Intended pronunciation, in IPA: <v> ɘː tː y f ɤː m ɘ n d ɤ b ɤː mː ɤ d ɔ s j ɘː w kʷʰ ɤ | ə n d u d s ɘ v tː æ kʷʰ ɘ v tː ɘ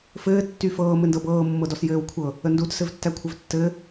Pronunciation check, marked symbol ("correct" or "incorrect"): incorrect